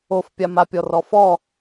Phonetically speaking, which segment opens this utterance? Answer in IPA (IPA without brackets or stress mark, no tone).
o